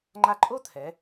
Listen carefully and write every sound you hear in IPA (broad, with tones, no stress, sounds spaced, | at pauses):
ŋ͡ǃ a˧ ǃʼ o˥ t̪ʰ ɛ˩˧